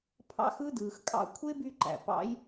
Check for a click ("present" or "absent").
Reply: present